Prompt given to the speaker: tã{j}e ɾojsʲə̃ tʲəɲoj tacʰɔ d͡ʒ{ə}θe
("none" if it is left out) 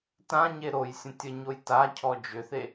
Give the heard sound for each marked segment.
ɲ, ʏ

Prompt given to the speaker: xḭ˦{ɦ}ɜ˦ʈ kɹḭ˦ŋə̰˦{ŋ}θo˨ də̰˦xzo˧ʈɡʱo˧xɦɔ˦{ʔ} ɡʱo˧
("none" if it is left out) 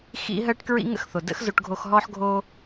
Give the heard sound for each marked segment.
ɦ, x, ħ

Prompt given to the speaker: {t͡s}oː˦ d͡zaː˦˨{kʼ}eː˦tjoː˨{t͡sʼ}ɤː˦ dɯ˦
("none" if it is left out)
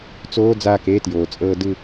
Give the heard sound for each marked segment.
t͡s, k, t͡sʼ

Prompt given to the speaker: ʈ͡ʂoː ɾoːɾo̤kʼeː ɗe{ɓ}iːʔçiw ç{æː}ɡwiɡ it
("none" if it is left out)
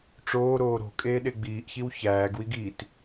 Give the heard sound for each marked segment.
ɡ͡b, æː

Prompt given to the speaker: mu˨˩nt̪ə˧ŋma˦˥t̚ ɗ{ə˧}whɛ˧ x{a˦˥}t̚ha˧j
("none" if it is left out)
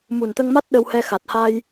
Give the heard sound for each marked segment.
ə˧, a˨˩

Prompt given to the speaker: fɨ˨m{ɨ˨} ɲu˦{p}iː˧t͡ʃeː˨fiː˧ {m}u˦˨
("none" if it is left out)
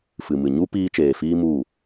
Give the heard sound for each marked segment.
ɨ˨, p, m

